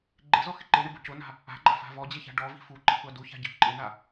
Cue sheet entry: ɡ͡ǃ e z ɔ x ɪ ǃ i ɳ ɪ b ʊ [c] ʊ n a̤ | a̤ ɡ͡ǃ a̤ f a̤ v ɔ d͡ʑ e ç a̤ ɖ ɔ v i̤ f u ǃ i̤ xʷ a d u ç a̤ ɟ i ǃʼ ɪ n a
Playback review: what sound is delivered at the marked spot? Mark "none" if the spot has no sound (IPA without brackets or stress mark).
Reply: c